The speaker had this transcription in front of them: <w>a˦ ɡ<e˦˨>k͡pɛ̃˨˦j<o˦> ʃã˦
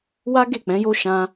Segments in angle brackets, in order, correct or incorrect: correct, correct, correct

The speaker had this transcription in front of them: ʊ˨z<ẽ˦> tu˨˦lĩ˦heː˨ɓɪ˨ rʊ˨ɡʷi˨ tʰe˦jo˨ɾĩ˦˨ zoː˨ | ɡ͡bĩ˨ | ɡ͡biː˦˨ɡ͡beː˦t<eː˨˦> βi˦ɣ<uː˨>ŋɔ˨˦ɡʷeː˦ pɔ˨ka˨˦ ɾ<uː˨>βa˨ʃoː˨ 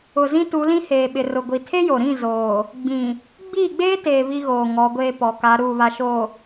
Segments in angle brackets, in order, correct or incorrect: incorrect: ĩ˦, incorrect: eː˨, incorrect: oː˨, correct

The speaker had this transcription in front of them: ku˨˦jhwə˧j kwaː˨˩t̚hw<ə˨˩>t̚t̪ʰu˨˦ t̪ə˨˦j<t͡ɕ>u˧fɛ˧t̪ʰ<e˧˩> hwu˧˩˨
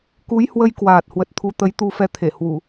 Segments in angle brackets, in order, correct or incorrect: correct, incorrect: t̪, correct

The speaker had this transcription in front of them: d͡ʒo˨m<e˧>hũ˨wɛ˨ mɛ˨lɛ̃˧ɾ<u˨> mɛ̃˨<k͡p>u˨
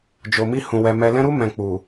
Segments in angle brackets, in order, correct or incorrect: incorrect: i˧, incorrect: u˧, correct

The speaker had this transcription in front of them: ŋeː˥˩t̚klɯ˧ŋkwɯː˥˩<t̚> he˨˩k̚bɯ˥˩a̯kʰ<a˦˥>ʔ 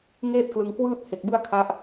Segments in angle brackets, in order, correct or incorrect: correct, correct

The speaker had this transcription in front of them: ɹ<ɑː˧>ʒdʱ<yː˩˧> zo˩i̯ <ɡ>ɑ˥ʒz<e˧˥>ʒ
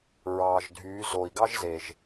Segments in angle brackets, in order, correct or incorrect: incorrect: ɑː˩, correct, correct, incorrect: e˩

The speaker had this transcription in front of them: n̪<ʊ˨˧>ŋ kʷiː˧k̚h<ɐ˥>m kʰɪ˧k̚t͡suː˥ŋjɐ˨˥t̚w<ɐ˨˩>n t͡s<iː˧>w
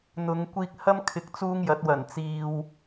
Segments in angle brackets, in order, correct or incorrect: correct, correct, correct, correct

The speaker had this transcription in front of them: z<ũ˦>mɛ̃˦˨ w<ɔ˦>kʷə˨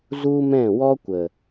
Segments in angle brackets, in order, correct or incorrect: incorrect: u˦, correct

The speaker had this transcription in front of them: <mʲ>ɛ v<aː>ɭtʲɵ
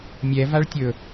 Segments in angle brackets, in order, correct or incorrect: correct, incorrect: a

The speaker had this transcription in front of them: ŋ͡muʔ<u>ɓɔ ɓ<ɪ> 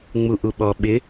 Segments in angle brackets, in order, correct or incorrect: correct, correct

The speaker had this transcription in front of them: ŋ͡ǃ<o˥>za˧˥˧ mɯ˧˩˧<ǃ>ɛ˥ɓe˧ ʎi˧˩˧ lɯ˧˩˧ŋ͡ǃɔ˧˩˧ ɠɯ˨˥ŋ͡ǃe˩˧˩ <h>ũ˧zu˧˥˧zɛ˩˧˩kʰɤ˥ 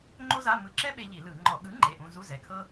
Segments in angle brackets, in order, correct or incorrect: correct, incorrect: ǁ, incorrect: ʔ

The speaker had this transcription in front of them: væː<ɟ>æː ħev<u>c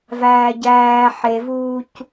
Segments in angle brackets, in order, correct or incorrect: correct, incorrect: uː

